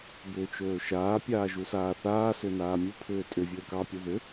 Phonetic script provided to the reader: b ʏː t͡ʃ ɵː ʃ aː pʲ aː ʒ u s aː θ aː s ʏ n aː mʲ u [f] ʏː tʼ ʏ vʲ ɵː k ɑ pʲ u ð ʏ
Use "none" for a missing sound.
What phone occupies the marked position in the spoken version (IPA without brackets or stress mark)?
pʰ